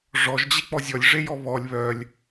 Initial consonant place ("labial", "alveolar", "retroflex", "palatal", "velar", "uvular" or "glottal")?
retroflex